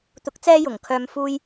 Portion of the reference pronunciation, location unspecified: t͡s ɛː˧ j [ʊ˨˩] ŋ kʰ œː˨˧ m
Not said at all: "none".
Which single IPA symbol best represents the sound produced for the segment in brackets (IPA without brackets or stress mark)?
ʊ˨˩